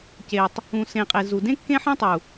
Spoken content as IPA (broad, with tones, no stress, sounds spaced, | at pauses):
c e˨ tˤ | ũ˨ s ẽ˨ qʼ e˨ z u˨ d ẽ˦ kː ẽ˦ ħ ẽ˦ tˤ u˨